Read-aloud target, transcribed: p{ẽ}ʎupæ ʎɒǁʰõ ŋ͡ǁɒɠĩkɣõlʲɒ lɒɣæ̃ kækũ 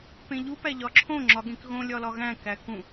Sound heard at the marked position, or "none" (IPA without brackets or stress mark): ẽ